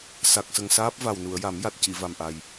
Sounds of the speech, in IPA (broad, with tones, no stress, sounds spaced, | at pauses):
s a˨˩ k̚ s ə˨˩ ŋ s aː˦˥ p̚ v a˨˩ w n u˨˩˨ ə̯ j a˨˩˦ m j a˨˩ t̚ c i˨˩˨ v a˨˩ m ʔ a˨˩ j